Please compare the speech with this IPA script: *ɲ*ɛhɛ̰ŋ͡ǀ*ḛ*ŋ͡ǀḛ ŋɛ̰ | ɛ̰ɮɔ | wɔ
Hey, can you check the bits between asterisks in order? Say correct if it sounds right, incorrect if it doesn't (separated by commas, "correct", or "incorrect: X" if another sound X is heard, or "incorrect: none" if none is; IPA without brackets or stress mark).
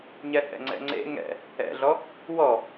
correct, incorrect: ɛ̰